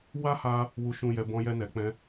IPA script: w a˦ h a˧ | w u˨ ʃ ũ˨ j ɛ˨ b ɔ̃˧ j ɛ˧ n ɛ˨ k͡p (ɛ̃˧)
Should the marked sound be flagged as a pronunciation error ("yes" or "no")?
no